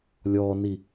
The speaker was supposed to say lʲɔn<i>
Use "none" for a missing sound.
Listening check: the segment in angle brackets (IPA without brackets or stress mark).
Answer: i